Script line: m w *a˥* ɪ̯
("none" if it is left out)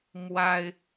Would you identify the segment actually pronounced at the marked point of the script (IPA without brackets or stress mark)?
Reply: a˥